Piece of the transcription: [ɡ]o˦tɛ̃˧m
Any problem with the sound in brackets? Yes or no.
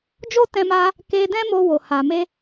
yes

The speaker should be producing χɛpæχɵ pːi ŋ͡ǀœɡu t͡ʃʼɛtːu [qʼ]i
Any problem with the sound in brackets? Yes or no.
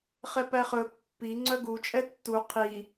yes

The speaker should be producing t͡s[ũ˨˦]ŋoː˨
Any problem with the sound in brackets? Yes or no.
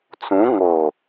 no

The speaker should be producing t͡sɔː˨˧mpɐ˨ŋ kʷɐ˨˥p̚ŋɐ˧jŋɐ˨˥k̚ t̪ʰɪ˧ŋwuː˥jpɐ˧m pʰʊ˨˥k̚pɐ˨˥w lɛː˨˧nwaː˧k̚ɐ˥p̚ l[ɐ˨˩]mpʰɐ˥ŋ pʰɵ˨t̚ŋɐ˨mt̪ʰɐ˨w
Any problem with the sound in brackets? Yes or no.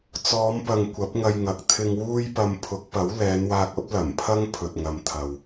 no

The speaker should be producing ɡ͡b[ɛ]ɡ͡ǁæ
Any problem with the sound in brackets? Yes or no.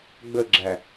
yes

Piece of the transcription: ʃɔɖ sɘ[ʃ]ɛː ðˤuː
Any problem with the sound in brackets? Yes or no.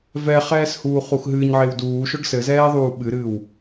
yes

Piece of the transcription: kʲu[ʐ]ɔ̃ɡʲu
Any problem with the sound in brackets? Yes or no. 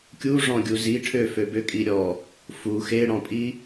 no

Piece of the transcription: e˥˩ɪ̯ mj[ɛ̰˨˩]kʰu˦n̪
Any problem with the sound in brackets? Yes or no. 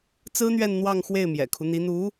no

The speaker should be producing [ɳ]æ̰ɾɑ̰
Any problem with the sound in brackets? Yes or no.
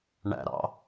no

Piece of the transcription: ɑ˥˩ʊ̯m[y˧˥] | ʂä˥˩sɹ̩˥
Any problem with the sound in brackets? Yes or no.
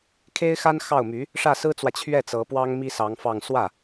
no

